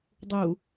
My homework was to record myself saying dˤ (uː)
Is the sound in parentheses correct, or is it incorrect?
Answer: incorrect